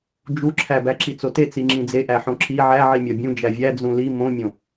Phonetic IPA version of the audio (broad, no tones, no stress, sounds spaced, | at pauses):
d͡ʒ u ǁʰ æ b æ ǁ i t͡s o t e t͡s i ŋ͡ǁ ĩ d͡z e ʔ æ ħ õ ǁ i ʕ æ ʕ i mʲ ɒ bʲ ũ d͡ʒ æ vʲ æ d͡z ũ l i m õ mʲ õ